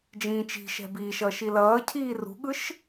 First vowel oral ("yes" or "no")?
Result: no